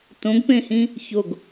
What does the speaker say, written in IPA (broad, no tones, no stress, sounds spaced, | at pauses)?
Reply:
t õ ɡ p ẽ h ĩ | ç o ɡ